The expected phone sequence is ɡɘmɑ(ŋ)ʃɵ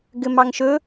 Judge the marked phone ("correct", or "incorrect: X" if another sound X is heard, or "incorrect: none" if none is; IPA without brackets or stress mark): correct